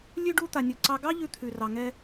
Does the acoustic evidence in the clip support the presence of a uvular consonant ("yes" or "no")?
no